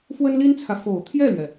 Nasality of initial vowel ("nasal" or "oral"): oral